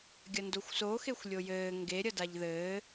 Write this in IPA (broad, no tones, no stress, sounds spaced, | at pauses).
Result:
ɡʲ ɐ n d o xʷ s o x e xʷ lʲ o j ɘː ŋ ɡ e ɾʲ ɐ d a ʎ ð ɘː